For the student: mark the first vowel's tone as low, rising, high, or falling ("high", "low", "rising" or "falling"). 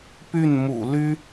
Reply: falling